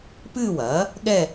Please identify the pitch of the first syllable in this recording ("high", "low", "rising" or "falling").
falling